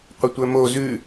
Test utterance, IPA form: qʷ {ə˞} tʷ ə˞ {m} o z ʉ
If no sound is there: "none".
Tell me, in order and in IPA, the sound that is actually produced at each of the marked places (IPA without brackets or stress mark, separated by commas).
ə, m